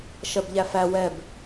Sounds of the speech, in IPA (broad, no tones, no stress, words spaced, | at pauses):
ʃɜbʎæfæ wɛb